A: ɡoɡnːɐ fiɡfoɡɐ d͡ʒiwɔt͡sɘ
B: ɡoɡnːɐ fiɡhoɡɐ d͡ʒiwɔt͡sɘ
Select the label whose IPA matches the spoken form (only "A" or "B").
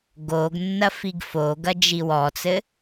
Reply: A